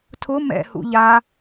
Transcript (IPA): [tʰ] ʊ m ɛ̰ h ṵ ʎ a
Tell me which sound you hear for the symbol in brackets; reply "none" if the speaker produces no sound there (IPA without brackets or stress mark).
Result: tʰ